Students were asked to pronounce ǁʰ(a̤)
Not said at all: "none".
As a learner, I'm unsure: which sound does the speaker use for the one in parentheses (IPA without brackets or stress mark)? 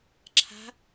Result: a̤